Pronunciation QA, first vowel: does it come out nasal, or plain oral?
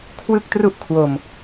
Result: oral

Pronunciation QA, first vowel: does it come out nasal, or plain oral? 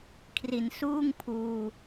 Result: oral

